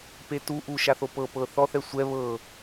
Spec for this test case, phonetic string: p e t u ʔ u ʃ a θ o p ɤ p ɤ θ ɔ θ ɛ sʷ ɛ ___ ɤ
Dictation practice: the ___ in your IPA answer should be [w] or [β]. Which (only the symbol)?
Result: β